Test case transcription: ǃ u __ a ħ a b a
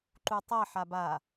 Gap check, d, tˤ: tˤ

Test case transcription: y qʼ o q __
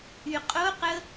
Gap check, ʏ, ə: ə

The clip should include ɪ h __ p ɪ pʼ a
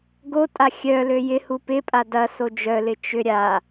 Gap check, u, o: u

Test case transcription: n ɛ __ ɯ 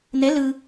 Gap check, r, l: l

